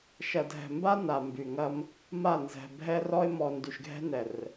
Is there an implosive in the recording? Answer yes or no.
no